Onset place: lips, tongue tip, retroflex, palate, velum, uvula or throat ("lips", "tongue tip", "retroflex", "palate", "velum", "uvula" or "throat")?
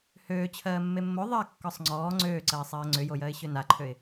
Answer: throat